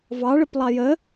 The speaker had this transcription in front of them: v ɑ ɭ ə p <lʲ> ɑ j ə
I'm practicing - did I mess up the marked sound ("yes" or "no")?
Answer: yes